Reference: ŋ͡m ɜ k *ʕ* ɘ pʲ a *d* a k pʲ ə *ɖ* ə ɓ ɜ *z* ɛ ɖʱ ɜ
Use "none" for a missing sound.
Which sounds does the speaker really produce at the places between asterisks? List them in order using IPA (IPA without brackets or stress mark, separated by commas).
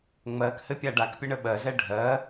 h, ɖ, ɳ, z